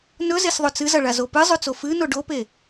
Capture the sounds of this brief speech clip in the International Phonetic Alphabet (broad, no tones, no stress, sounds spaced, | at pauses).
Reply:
n ɵ z e s ðˤ ɵ t͡s ɨ z ɐ ɭ a z o p ɨ zˤ ʉ t͡s o f ɨ n o ɖ o p e